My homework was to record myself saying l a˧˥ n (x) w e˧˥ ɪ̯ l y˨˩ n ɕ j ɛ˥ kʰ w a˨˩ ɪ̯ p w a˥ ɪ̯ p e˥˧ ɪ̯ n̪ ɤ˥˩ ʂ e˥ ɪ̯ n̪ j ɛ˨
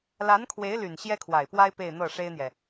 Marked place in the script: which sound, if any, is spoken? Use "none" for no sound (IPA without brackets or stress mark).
kʰ